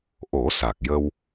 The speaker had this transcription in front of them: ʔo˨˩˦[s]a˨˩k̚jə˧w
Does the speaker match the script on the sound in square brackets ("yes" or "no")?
yes